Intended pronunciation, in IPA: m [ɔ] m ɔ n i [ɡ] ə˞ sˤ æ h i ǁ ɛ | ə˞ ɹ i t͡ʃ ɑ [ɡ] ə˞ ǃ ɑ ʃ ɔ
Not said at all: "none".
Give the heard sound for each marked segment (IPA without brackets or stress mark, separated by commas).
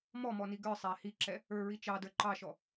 ɔ, ɡ, d